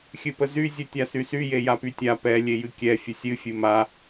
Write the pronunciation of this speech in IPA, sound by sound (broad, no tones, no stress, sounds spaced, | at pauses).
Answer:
xʲ ɨ p ə z y zʲ ɨ tʲ a s y s y j e j a p y tʲ a p ɛ lʲ e j ɨ kʲ ɛ fʲ ə sʲ ɨ fʲ ɨ m a